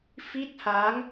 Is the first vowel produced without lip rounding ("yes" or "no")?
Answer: yes